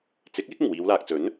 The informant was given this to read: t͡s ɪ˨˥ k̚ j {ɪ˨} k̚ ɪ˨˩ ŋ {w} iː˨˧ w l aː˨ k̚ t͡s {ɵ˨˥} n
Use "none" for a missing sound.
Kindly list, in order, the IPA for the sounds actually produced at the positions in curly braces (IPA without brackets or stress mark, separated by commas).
ɪ˥, w, ɵ˨˥